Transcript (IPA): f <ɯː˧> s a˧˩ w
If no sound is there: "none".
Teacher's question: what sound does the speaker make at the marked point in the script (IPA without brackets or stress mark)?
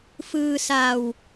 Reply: ɯː˧